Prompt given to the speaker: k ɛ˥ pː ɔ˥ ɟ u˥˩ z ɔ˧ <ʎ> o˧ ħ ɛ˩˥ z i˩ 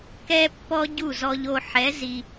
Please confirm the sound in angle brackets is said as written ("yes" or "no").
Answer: yes